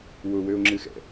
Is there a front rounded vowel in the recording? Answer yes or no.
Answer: yes